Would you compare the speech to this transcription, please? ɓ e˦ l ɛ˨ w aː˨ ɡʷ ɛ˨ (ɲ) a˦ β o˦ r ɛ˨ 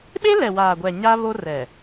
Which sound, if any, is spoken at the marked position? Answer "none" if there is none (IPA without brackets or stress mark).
ɲ